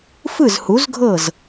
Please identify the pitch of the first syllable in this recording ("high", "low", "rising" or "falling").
falling